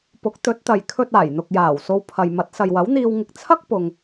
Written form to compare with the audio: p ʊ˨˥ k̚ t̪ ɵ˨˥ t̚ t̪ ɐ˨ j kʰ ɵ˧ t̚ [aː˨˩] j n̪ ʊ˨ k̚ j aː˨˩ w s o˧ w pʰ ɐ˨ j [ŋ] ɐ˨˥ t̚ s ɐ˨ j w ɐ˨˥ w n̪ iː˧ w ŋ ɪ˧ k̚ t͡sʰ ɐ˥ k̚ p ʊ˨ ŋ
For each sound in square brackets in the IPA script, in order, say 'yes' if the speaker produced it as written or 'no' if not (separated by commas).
yes, no